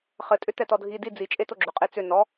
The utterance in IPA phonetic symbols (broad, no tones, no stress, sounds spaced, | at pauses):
χ ɘ tʼ ʏ t ɛ t ɔ dʱ i d i d͡z i t͡ʃʼ e t o ɡ͡ǁ ʏ qʼ e t͡s ʏ n ɔ